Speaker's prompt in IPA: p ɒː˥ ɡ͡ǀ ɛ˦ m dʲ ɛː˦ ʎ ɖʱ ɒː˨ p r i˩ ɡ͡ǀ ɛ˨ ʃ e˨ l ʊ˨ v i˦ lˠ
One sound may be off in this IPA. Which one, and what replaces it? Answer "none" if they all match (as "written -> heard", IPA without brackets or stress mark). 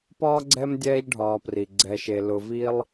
none